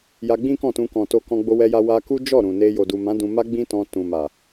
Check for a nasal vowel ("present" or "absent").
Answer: present